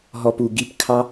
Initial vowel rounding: rounded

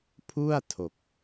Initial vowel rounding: rounded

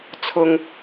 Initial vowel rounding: rounded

